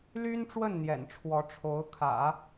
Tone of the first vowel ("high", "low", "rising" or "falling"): high